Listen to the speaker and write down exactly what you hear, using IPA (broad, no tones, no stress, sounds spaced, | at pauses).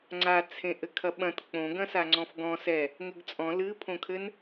ŋ͡ǀ a t͡sʰ ẽ ʔ ɘ kʰ ɐ ɓ ɐ̃ t k͡p õ ɡ ɐ̃ s a ŋ͡ǀ ɔ̃ f ɡ ɔ̃ s ɛ | ŋ ɘ ɡ t͡sʼ ɔ̃ l ɨ pʰ õ kʰ ɘ n